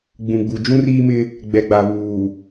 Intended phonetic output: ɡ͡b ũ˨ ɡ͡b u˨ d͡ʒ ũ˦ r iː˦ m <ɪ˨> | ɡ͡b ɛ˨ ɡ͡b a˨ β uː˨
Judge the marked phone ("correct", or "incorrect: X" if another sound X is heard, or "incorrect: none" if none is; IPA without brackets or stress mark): incorrect: ɪ˦